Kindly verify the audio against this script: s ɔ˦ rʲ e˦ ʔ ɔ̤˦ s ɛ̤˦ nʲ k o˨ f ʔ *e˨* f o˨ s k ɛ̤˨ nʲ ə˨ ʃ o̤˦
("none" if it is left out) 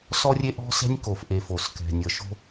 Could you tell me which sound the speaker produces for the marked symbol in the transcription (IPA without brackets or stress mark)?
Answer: e˨